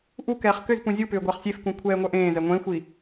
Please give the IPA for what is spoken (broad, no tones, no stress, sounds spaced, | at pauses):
ʔ u k ɛː χ k ʏ z p ũ zʲ u p ʏː ɡʷ a χ sʲ e f k ũ kʷʰ ɛː ŋʷ œ ʔ ẽː z ɛ ŋʷ ẽ xʷ i